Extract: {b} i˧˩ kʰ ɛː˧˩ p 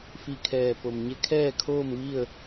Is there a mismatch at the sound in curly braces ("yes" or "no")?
yes